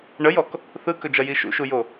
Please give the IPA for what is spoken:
ɳəjɔk | θɯkɵd͡ʒɐji ʃṵʃujo

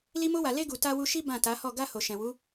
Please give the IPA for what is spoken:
li˧mo˧wa˨le˧ ɡu˨ta˧wu˧ʃi˦ bã˦˨ta˨˦hɔ˦˨ ɡa˧ ho˨ʃɛ̃˨ wu˨˦

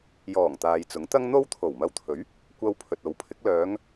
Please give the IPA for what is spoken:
jɔː˨˩ŋ t̪aː˨jt͡sʊ˨˥ŋt̪ɐ˥ŋ n̪o˥wt̪ʰo˨˩w mɐ˧wt̪ʰɵ˨˥ɥ | kʷɐ˧w pʰɵ˨t̚o˨˥wpʰɪ˨˥k̚ lœː˨˧ŋ

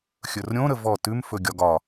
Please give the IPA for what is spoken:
xʲɵrɾʲõɾə vɔ tʉmfɵ ɡʲɒɡɒ

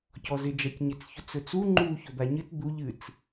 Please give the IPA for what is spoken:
cɔzɪ d͡ʒacɲɪt͡s çɵt͡sɵt͡su ŋ͡ǃu çɵd̪aɲɨt d̪uʎ ɨt͡s

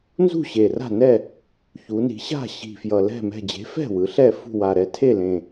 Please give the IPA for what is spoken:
nzṳ˥˨ɕe˨˩ra̤˥˨nɛ˥˨ | çu˩˧ni̤˩˧ɕa̤˥˨ ɕi̤˨˩fjʌ˨˩lɛ̤˥˨ mɛ̤˥˨ d͡ʑe̤˨˥fɛ̤˥˨wɯ˩˧ ɬɛ˥˨fṳ˥˨ wa˨˩ɾɛ˨˥ tʰe˥˨lẽ˨˩

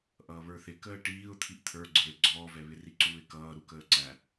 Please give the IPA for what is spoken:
ʔʌːβə˞θɪ kəːʈiːʊ̯ t̪ʰiʔt̪ʰə˞ɡ͡ǀə˞ɪ̯ ɡ͡ǀɔːvɛβɪri ǀuːɪ̯kʌː ɾukəːǀæ

